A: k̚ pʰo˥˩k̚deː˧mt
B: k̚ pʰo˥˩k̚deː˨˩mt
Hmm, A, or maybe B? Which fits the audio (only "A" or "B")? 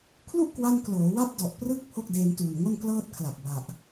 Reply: A